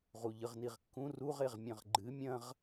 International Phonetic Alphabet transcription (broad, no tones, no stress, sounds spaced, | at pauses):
ʁ u ʎ ɨ ʁ n i ʁ kː ũ r u ʁ e ʁ mʲ ɐ̃ ʁ ɡ͡ǃ ɨ mʲ ɐ̃ ʁ